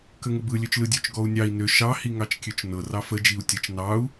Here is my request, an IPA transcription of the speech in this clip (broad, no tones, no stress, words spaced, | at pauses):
kəŋəbɯ lʲøt͡ʃlɯdʲøt͡ʃ ɡɔu̯nʲɑi̯ nø ʃɑ hiŋɑt͡ʃkʲøt͡ʃnɤ rɑfə d͡ʒiu̯tʲət͡ʃ nɑu̯